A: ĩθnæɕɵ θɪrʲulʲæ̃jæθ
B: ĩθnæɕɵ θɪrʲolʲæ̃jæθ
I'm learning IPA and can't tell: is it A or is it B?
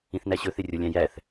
B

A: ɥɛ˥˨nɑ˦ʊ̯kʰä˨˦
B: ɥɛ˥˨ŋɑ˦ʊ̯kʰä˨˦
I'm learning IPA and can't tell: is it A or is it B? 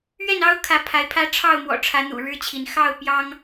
A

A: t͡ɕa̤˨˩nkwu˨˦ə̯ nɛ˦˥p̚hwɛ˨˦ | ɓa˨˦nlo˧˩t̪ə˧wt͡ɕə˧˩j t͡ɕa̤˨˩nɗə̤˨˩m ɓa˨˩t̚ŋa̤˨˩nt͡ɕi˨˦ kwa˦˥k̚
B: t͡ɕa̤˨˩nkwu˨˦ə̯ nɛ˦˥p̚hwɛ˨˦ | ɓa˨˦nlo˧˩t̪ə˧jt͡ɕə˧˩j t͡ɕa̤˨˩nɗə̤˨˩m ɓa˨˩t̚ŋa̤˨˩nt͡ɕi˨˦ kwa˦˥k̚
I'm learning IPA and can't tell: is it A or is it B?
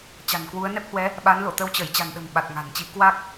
A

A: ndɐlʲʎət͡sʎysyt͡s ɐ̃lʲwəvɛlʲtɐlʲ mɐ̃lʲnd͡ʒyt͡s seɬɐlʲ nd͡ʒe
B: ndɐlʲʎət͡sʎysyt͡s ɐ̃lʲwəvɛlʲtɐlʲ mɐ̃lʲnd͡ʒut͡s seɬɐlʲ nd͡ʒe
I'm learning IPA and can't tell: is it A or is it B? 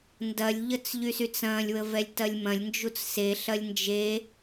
B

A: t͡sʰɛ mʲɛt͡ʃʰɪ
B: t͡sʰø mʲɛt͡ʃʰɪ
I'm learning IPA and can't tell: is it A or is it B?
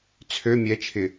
B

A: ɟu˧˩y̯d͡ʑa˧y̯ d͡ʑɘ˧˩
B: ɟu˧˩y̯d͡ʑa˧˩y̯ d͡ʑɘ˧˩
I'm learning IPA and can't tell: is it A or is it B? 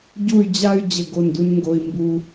A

